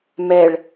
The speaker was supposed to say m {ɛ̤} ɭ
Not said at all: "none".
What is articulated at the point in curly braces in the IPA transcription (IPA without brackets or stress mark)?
ɛ